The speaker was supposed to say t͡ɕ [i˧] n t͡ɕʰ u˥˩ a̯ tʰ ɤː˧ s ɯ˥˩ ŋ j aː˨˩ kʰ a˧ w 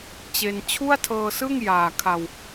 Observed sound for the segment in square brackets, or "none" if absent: e˧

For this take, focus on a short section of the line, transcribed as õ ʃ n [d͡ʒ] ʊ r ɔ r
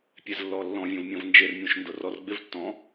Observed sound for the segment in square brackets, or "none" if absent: d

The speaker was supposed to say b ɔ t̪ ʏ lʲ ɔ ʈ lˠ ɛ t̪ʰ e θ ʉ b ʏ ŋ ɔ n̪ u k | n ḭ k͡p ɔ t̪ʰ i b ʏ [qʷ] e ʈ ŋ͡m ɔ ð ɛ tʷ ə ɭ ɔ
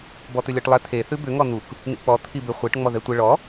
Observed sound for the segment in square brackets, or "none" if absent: χʷ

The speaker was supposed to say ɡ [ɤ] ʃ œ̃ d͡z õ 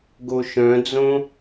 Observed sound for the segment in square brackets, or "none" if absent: o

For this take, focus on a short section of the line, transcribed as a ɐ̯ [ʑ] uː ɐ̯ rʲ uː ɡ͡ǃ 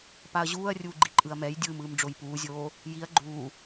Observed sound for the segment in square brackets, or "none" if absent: ʑ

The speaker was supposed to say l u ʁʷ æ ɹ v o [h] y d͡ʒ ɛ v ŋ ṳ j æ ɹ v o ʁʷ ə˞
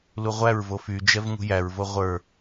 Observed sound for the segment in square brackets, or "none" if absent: f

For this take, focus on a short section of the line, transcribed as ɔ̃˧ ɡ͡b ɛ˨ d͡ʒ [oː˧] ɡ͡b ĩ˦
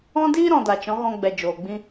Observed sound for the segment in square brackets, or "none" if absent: oː˨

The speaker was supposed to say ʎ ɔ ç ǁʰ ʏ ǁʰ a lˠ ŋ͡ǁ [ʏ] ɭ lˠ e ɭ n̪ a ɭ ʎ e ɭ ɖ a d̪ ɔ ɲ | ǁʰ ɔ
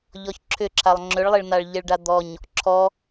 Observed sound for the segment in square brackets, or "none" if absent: ʏ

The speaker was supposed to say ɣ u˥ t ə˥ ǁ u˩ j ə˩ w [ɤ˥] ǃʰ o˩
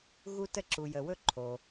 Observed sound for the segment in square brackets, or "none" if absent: ɵ˥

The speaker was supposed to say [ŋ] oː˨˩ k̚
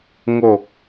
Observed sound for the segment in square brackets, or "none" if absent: ŋ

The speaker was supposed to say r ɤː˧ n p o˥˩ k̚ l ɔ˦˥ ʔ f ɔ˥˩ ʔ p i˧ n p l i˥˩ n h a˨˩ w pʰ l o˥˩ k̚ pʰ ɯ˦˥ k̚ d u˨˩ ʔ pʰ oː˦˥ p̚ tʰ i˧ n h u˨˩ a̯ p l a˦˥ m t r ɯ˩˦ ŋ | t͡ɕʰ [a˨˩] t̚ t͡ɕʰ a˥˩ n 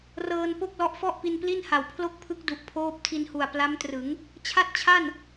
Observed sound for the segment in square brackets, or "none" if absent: a˥˩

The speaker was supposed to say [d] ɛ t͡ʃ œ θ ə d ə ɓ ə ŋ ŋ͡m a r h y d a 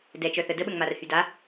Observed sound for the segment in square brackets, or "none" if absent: d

